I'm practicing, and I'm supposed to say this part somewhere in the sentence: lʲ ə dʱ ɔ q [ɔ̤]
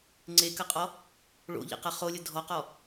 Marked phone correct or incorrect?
incorrect